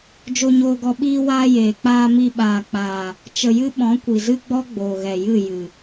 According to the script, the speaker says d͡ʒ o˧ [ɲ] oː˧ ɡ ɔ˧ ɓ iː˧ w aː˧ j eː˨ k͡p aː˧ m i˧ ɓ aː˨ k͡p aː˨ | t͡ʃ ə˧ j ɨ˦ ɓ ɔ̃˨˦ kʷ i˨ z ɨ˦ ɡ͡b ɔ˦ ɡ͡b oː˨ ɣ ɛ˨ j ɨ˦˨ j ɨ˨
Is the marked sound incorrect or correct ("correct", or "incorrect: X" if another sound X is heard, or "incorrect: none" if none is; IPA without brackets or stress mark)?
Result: correct